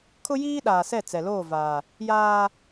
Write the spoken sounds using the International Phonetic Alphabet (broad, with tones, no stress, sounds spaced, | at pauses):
kʰ ʊ˦ j iː˦ ɗ aː˨ s ɛ˦˨ t͡s ɛ˨ l oː˦˨ v aː˨ | j aː˦